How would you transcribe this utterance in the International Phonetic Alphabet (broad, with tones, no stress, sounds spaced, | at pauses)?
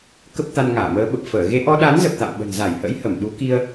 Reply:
k ə˦˥ p̚ t̪ a˧ n ŋ aː˧˩ m əː˨˦ ɓ ə˨˩ p̚ f əː˧˩ ɣ e˧ ʔ ɔ˧ ɗ a˨˦ n z ə˨˩ p̚ t̪ a̰˧˨ m ɓ ə̤˨˩ n z a˧˩ j h ə̰˧˥ j h ə˧˩ m ɗ u˨˦ k i˧ ə̯